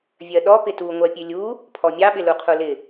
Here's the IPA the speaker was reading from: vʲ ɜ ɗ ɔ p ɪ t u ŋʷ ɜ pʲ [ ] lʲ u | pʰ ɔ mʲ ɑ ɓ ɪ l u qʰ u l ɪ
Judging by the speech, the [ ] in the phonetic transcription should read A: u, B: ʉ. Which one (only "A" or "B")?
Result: B